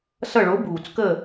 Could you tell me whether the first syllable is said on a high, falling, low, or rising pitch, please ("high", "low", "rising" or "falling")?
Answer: falling